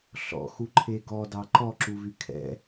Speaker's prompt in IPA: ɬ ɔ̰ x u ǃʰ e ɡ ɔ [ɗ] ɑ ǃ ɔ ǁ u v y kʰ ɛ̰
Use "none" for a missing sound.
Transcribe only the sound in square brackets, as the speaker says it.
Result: d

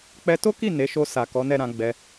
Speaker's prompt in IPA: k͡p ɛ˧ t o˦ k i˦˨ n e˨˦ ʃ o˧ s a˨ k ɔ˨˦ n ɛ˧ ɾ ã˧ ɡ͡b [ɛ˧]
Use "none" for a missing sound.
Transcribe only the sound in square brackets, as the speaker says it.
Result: ɛ˧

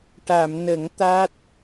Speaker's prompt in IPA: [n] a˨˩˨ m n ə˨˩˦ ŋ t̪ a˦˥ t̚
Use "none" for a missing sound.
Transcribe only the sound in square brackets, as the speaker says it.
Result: ʈ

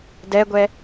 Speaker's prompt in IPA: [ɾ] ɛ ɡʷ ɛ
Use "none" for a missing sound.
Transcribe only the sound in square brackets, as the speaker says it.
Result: d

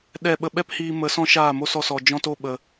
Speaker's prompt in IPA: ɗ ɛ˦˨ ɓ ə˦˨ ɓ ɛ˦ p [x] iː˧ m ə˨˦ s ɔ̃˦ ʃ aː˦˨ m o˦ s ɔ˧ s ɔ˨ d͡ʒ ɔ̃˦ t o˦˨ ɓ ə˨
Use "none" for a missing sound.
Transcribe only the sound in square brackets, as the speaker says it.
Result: h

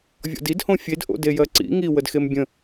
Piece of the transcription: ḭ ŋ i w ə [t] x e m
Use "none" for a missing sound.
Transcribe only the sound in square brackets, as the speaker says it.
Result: d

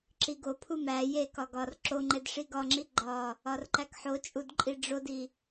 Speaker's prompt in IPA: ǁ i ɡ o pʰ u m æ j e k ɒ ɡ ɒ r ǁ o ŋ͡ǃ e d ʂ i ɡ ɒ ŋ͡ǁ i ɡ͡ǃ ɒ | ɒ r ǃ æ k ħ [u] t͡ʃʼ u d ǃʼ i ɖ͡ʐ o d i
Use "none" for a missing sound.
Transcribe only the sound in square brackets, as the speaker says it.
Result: o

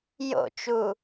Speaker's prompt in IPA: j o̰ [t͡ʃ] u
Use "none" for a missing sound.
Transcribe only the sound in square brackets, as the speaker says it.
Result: t͡ʃ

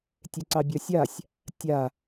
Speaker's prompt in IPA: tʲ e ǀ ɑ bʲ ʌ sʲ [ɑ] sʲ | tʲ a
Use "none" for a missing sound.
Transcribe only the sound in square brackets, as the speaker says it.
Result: a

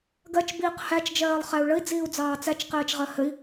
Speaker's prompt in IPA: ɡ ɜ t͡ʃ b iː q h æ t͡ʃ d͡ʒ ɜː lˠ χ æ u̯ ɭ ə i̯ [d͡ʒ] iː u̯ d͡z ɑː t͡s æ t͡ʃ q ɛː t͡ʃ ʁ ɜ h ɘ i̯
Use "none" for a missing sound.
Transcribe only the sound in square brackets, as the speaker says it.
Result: d͡z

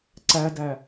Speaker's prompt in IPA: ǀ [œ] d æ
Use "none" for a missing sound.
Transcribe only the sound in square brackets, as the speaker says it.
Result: æ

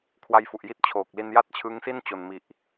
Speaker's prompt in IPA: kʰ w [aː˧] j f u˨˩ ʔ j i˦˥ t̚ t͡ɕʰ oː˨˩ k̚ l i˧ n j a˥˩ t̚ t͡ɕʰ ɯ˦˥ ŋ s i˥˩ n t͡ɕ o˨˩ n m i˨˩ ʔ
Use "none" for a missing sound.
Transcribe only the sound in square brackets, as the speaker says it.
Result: a˧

